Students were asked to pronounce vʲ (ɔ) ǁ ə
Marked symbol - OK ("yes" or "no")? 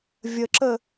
no